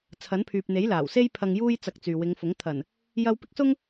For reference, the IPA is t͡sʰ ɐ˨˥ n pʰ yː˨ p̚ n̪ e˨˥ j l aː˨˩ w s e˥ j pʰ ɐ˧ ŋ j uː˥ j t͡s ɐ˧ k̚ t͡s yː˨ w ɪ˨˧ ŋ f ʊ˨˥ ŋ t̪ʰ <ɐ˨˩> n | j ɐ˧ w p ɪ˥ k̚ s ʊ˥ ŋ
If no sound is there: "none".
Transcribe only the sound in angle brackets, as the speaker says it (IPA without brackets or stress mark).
ɐ˨˩